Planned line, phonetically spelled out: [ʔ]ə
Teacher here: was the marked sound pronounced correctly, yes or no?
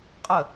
no